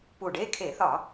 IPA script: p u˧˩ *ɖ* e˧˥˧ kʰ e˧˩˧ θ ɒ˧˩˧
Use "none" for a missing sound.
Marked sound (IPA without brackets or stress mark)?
ɖ